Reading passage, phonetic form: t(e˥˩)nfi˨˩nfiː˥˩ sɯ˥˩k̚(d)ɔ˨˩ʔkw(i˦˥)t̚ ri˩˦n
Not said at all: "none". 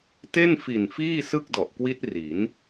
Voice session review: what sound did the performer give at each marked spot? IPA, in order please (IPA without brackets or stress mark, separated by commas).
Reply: e˥˩, d, i˦˥